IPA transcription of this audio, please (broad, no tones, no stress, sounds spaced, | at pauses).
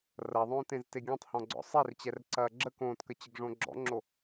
r ɐ ðˤ õː t ẽ z t e ɡʲ ɔ̃ tˤ h ɔ̃ ɡ͡ǀ ɔ̰ sˤ e r t͡ɕ ɛ r ǀ ɐː ɡ͡ǁ ə k õː t k ə t͡ɕ ə ɡ ʐ õ ɡ͡ǁ ɔ̰ ŋ͡ǁ o